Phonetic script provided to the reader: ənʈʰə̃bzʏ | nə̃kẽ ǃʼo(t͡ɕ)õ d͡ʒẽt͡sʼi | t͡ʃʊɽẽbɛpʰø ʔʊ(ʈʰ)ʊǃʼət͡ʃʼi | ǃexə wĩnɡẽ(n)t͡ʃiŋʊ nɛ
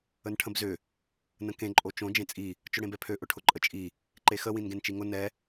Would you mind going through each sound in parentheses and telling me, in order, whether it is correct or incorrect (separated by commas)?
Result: incorrect, correct, correct